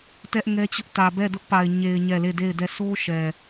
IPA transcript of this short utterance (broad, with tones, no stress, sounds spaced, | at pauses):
t ɛ˦ ʔ ŋ ɛ˦ t͡ɕ ʊ˦ ʔ t ä˨ b ɛ˦˨ d ʊ˦ ʔ p a˨ ɪ̯ ɲ e˨ ɪ̯ ɲ ɛ˦˨ l e˦˨ d e˦˨ ɪ̯ d ɛ˦˨ sʰ o˦ ʃ ɛ˨